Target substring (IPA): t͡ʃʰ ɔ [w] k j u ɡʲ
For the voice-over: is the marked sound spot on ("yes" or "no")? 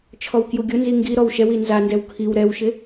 yes